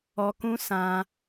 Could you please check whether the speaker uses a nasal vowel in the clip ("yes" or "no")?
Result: yes